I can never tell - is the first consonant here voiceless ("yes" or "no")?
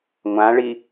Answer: no